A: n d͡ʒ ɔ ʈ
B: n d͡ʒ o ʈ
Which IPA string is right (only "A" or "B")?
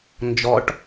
A